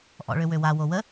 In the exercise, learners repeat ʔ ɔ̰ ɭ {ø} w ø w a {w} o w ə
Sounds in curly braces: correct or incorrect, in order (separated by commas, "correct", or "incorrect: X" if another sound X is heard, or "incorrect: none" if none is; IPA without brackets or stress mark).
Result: correct, correct